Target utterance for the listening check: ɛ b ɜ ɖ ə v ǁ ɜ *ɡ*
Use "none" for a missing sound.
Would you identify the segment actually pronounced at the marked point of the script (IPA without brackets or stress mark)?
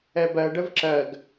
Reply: ɡ